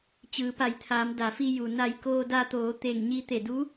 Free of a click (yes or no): yes